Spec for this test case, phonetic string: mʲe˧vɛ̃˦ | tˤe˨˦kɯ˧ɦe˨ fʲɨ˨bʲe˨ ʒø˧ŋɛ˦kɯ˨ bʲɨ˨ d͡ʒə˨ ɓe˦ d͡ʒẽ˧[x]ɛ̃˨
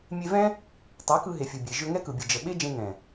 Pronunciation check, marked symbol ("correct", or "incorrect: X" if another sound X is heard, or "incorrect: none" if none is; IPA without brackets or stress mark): incorrect: ŋ